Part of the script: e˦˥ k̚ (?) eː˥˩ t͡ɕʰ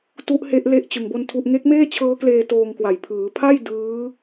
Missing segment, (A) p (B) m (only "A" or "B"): B